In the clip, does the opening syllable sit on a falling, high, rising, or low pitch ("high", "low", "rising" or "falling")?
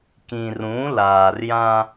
low